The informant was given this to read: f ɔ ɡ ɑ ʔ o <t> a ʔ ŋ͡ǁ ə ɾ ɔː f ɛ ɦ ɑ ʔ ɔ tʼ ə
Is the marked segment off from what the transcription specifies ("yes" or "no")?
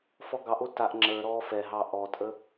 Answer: no